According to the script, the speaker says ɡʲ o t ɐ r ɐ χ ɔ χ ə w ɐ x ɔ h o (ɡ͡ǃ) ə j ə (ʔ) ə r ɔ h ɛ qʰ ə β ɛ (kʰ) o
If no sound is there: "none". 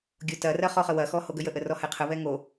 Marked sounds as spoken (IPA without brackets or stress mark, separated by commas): ɡ, ʔ, ŋ